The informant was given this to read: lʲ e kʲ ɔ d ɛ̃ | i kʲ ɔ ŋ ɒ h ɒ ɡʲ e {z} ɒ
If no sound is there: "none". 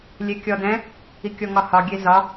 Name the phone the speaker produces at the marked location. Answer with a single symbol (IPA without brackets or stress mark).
z